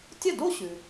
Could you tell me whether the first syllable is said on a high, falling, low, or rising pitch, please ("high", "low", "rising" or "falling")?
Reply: falling